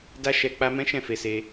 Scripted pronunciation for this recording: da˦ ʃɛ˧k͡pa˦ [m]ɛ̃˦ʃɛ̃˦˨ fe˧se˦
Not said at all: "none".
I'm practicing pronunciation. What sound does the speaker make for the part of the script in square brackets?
m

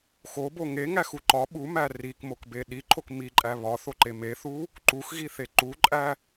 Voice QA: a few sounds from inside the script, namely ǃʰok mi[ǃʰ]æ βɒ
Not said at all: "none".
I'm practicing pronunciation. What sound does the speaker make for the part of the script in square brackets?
ǃʼ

